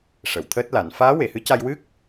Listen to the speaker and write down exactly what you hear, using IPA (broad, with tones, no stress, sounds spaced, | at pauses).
ʂ ə˨˩˨ w t̪ʰ əː˦˥ t̚ l a˨˩˦ n f aː˧˥ w e˨˩˨ h ɨ˧˥ c a˧ j w ɨ˦˥ k̚